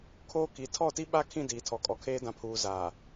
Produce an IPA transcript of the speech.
kʰ oː˦ k i˨˦ tʰ ɔ˦˨ t i˦ ɓ a˦ kʰ ĩ˦˨ d iː˨ tʰ ɔ˨ kʼ ɔ˨ kʰ eː˦ d ã˨ pʰ uː˨ z aː˨

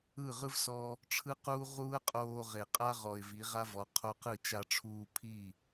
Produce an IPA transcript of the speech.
ɯ˦˨ ʁ ɯ˦ v s ɔ˧ | ʈ͡ʂʰ ɯ˦ q uː˦ ʁ uː˦ ə̯ qʼ oː˧ ʁ e˨ qʼ a˦ ʁ ɔ˨ ɪ̯ v i˨˦ ʁ a˦ v ɔ˨˦ qʰ o˧ q ɯ˦˨ t͡ʃ a˧ ʈ͡ʂʰ uː˧ pʰ i˦˨

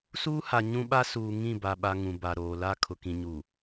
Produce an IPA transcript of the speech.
s uː˦ h a˨ ɲ ũ˦ ɓ a˦ s uː˨ ŋ ĩ˦˨ b a˨ ɓ a˨ ŋ ũ˨ b a˨ ɾ oː˨ l a˦˨ kʰ ʊ˨ k ĩ˨ ɲ u˨

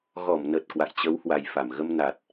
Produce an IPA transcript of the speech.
ɣ ɔ˧˩ m n ə˨˩ t̚ k w a̰˧˨ j t͡ɕ ə˨˦ w h w a˨˩ j f a˧˩ m ɣ ə˧ m n a˨˩ t̚

